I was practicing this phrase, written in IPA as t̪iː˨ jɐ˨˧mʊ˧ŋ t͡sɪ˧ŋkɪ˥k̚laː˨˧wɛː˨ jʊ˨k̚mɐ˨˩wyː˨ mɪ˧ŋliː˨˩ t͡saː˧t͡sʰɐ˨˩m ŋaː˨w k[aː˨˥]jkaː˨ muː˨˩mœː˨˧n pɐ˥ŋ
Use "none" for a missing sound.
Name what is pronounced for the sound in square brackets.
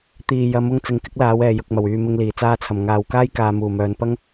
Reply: aː˥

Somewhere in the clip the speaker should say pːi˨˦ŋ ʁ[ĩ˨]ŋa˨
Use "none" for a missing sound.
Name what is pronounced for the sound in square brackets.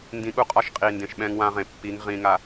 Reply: ĩ˨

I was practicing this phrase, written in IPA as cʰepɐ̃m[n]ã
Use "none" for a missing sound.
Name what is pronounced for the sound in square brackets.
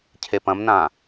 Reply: n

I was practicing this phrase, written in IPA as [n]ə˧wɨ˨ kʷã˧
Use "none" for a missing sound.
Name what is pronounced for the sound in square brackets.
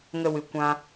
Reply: ŋ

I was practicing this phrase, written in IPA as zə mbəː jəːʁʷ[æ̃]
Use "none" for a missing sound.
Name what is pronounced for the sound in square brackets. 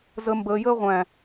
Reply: æ̃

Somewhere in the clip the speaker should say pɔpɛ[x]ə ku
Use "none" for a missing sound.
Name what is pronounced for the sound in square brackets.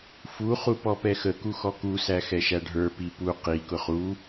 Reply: x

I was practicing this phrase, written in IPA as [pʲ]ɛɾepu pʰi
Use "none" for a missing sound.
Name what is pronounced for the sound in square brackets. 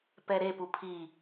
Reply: p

